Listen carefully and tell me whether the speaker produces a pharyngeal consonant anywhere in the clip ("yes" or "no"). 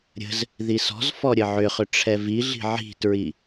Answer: yes